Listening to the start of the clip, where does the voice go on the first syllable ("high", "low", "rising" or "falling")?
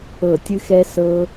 falling